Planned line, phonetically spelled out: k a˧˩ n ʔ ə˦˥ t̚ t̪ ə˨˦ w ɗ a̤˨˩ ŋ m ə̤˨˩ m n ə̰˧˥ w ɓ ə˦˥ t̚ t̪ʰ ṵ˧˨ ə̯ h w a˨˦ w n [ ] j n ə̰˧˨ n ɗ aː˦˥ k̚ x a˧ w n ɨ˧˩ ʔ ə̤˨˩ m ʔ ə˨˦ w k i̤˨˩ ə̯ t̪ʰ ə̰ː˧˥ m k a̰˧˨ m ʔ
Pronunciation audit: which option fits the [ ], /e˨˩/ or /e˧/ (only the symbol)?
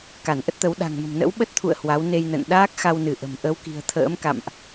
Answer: e˧